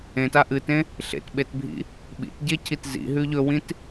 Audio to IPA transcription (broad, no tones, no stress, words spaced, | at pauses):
ẽta ʔɨtẽ | ɬḛtɓetbʱḭ | ɓḭtɟecʰit zḭɦʉ ʎɵwĩt